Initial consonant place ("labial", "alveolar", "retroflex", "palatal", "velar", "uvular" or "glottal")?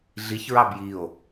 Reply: alveolar